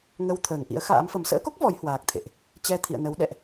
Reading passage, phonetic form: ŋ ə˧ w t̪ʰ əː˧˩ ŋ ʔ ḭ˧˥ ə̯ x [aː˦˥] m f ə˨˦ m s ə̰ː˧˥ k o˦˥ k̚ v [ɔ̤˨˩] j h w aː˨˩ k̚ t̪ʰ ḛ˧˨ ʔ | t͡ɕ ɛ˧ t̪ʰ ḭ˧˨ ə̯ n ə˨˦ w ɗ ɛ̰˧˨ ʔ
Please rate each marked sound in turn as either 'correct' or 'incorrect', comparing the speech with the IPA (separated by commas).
incorrect, incorrect